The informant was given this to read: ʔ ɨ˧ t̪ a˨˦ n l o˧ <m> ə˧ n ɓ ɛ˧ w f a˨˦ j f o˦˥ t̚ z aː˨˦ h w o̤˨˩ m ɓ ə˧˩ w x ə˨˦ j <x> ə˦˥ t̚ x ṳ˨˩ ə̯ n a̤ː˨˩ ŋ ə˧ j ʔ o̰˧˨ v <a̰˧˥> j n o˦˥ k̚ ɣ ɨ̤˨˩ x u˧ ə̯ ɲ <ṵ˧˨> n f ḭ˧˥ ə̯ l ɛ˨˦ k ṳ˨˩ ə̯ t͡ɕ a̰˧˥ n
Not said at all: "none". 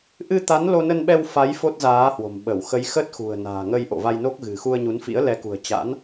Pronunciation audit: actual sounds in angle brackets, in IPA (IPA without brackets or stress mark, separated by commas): n, x, a˧, u˨˦